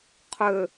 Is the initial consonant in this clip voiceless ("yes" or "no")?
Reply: yes